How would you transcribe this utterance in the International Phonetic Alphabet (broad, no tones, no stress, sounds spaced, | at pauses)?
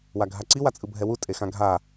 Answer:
w a ɡʱ a ǀ i w a t͡sʼ ɯ bʱ ɛ w u tʼ e x ã ɡʱ a